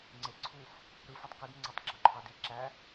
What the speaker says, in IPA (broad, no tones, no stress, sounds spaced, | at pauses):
ŋ͡ǀ e ǀʰ u f | ɾ ɯ f e tˤ k ɯ d ŋ͡ǀ æ tˤ ɡ͡ǁ o ǃʰ ɑ d i ǁ æ